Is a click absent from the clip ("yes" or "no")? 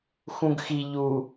yes